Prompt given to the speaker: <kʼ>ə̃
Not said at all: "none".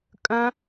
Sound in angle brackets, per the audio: kʼ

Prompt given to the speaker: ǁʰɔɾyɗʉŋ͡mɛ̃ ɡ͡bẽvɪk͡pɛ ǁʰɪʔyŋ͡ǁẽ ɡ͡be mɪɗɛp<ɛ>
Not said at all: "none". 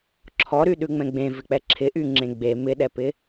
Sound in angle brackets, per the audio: ɪ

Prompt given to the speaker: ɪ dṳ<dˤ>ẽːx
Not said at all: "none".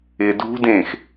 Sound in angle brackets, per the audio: d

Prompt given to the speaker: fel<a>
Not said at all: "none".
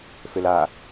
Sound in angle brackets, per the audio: a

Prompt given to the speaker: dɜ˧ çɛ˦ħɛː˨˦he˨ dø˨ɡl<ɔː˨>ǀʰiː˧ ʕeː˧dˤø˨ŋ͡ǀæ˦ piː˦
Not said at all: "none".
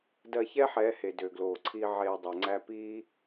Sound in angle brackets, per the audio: oː˨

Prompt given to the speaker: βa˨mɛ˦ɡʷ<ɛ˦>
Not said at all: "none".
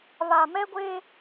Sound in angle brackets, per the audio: e˦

